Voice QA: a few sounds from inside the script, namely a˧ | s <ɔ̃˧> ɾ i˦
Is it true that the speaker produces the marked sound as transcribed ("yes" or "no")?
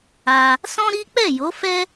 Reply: no